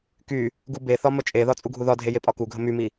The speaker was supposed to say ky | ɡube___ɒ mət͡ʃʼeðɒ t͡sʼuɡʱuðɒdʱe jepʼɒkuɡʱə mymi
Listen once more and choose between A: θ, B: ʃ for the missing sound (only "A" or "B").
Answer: A